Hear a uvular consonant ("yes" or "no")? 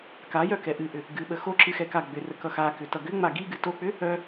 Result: no